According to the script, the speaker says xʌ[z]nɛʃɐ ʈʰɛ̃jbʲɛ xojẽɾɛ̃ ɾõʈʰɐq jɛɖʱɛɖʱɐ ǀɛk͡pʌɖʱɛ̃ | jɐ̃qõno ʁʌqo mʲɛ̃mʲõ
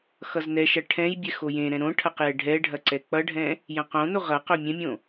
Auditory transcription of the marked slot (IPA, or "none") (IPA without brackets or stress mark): z